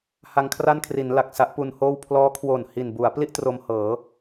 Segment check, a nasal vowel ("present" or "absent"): absent